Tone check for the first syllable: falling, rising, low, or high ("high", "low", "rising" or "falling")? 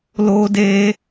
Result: high